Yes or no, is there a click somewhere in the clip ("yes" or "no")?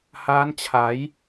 no